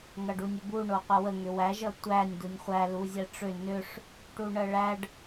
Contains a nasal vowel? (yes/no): no